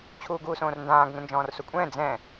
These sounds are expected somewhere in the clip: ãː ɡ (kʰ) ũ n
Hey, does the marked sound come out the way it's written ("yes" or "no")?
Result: no